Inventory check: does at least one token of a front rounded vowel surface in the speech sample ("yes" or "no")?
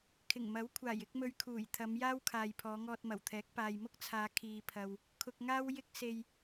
no